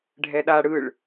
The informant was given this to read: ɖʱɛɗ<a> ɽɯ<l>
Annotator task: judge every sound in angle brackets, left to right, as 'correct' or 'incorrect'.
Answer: correct, incorrect: ɭ

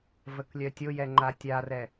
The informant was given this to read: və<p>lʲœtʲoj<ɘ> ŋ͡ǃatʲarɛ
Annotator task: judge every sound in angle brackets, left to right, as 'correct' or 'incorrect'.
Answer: incorrect: k, incorrect: ɛ

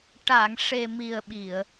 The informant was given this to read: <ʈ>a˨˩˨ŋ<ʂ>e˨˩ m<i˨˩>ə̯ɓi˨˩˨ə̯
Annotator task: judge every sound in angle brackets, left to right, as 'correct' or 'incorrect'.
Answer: correct, correct, correct

